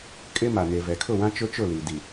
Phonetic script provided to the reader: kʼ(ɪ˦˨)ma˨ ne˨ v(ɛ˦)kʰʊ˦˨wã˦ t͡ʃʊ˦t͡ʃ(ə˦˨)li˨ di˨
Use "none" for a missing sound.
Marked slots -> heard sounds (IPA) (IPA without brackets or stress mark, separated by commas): ɪ˦, ɛ˨, ʊ˦˨